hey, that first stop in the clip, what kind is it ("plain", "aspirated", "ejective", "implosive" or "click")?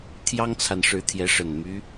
aspirated